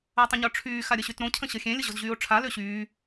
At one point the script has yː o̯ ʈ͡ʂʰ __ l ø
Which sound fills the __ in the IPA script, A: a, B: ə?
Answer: A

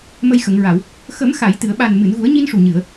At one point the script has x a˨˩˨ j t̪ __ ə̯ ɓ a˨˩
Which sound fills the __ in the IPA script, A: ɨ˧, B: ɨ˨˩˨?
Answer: B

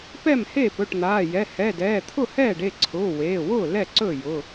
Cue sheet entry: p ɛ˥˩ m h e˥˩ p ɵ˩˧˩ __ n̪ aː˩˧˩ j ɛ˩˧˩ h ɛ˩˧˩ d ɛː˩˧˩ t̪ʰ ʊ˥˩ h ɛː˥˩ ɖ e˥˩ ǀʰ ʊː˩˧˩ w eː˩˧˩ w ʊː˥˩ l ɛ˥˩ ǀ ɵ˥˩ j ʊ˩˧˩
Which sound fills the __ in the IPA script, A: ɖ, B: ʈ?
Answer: B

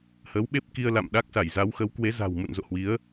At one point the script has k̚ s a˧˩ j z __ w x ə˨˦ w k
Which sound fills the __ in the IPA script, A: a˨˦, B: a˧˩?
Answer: A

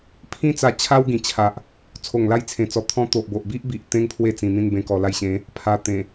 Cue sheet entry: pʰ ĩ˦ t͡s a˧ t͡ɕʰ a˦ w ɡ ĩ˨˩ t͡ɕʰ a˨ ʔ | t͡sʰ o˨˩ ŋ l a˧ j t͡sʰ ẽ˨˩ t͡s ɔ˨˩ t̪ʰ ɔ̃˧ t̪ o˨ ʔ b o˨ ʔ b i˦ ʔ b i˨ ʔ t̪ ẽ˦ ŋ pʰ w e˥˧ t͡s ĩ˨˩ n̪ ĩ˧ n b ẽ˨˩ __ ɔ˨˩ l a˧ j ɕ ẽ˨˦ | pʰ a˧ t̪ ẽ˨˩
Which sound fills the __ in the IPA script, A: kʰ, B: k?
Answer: B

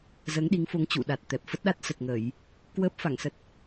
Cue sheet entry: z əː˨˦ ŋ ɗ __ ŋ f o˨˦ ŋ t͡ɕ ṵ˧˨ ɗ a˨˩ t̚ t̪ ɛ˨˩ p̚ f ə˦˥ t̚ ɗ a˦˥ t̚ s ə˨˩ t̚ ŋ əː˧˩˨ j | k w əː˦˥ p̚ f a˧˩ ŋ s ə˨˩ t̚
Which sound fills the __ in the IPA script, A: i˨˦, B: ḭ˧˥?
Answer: A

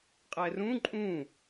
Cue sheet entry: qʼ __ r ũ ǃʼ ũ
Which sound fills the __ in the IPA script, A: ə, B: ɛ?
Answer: B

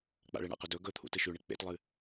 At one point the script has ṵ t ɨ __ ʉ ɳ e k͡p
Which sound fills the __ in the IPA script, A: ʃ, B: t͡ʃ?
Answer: A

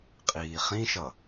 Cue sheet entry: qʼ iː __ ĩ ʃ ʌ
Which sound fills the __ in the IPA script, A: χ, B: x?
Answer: A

